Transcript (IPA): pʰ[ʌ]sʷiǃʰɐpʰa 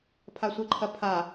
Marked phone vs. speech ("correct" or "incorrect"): incorrect